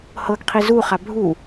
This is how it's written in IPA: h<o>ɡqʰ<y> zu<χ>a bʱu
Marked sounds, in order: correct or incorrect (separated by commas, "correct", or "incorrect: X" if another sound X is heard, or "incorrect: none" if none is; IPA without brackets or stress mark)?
incorrect: ɤ, incorrect: i, correct